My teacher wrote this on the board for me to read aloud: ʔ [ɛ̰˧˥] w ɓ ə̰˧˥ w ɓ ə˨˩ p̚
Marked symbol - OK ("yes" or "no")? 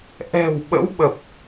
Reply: no